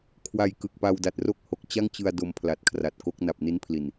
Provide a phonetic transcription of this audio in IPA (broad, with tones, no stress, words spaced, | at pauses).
kʰwa˧jkɯ˨˩k̚ pa˧wda˨˩t̚ro˥˩k̚ ho˨˩k̚t͡ɕa˥˩ŋt͡ɕɯ˧a̯ do˧mpʰla˨˩t̚kʰra˨˩t̚ ko˦˥k̚ na˨˩p̚ni˦˥npʰli˨˩n